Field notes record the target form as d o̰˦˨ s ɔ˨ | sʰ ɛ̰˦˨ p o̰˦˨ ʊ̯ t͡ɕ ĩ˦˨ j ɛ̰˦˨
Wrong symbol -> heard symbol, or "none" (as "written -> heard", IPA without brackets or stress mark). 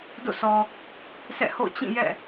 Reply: p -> h